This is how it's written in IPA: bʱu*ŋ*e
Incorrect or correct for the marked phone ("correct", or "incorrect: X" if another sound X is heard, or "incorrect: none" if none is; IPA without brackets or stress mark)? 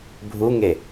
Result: correct